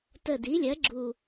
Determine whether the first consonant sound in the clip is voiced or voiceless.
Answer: voiceless